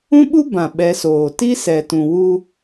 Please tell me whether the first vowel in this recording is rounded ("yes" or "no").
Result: yes